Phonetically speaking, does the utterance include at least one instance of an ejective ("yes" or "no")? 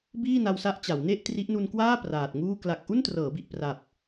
no